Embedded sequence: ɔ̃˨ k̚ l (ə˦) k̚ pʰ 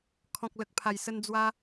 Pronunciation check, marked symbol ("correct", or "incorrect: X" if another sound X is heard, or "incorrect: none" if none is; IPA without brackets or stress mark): incorrect: ə˨